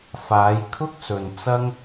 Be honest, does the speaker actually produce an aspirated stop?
yes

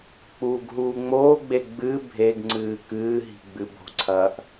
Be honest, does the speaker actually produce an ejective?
no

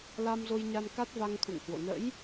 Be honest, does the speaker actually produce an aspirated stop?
yes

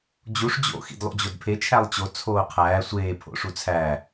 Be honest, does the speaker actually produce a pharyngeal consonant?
no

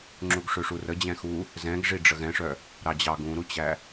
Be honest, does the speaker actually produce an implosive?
no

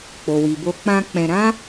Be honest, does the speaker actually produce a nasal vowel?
yes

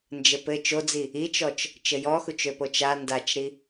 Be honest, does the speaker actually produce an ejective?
no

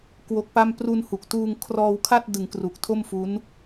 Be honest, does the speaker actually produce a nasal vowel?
no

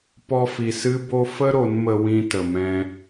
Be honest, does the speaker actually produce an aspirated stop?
no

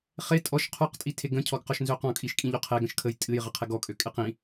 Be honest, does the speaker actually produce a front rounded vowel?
yes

